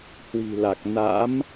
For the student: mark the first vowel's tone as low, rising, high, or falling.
low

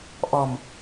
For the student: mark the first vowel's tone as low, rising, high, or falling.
low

